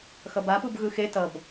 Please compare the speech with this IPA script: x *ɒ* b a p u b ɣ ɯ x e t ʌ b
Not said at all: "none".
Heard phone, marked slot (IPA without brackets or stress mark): ʌ